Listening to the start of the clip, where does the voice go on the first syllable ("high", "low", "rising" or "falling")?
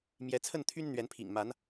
rising